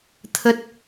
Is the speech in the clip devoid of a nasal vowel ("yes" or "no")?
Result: yes